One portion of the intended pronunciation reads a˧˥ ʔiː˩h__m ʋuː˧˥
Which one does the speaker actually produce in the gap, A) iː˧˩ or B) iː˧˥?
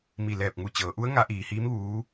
B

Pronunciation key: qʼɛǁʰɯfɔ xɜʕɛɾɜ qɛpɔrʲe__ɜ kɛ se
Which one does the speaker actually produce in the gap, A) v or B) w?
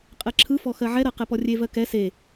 A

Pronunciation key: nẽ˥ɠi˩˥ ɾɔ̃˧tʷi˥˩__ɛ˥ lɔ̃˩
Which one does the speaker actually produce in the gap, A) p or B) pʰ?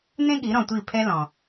B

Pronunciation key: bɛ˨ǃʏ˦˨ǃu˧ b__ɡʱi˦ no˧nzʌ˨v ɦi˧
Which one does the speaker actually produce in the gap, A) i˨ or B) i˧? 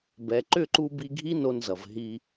B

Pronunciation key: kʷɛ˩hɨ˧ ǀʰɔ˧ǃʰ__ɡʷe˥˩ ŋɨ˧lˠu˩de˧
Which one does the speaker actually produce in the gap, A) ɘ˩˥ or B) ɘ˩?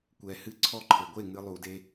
B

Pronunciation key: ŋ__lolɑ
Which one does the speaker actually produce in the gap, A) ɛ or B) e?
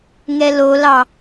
A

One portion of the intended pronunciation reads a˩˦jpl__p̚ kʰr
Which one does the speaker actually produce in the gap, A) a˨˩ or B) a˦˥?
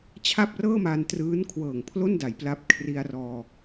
B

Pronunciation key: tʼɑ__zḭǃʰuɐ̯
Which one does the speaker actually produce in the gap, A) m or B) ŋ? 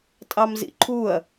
A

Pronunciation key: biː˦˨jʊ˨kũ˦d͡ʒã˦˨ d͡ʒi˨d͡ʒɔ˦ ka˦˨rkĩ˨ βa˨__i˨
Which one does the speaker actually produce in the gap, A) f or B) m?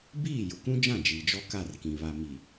B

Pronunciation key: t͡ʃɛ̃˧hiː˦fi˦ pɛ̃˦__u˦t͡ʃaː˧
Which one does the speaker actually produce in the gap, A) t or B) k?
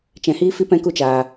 B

